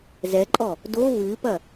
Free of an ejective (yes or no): no